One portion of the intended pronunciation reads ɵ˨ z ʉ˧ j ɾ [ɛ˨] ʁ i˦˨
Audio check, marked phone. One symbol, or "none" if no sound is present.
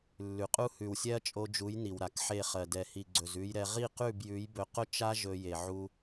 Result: ɛ˧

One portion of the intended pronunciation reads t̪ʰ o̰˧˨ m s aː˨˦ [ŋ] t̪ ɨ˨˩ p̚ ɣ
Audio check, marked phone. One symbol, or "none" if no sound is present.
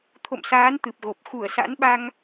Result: n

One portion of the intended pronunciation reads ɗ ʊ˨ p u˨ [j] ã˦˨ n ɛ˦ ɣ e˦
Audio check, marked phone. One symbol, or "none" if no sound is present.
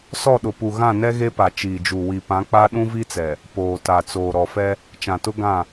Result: ɣ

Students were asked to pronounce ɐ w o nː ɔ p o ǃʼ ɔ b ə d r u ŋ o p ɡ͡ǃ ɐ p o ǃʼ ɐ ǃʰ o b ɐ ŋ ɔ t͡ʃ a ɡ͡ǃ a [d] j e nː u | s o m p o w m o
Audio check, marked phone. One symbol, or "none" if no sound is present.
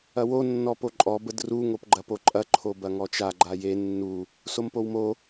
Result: none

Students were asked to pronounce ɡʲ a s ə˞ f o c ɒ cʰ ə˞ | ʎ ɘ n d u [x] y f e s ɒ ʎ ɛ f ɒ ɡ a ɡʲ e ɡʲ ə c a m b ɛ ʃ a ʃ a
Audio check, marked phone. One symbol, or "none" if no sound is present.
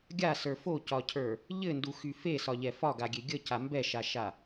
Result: x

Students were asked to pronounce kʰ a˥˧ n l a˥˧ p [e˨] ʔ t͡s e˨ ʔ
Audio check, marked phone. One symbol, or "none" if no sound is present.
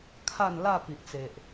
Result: i˨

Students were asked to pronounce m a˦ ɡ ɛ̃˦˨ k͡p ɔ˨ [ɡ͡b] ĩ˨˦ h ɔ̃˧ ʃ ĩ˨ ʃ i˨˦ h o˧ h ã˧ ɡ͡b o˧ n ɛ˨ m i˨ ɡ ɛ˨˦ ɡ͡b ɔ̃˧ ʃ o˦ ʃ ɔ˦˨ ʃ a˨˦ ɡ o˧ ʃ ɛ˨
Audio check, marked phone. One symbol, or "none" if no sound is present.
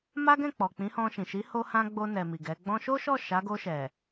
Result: k͡p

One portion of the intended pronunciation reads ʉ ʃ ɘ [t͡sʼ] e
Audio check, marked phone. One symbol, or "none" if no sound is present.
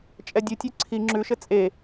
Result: t͡sʼ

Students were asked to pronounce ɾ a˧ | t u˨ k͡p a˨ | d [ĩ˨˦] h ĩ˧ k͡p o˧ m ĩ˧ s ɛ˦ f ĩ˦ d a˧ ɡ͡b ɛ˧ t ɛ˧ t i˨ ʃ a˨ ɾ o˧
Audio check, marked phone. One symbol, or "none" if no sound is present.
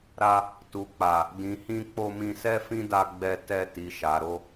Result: ĩ˨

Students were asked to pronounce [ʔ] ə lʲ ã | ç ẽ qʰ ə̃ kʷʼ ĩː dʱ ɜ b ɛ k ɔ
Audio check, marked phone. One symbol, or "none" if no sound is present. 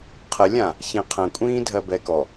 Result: qʰ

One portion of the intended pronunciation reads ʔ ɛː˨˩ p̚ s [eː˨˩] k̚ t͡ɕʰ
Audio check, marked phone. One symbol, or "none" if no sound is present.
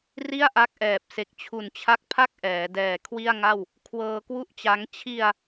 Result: e˨˩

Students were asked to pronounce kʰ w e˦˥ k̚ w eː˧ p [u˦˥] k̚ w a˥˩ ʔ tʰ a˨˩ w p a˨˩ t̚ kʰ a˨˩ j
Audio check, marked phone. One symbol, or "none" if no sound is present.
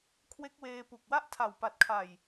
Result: u˨˩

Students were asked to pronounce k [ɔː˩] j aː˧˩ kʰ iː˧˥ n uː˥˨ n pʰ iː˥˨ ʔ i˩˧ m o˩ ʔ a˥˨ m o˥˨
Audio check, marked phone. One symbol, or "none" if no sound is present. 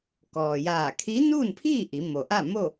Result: ɔː˩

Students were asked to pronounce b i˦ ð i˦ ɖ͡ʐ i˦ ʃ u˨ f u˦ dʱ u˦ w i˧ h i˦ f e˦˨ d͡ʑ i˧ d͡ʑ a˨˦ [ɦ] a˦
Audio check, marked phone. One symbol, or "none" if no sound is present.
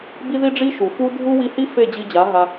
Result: ɦ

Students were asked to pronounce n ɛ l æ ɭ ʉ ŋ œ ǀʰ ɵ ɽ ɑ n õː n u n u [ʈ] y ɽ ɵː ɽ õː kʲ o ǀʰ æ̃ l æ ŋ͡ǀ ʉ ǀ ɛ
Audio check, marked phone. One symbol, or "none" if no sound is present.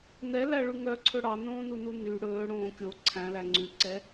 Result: n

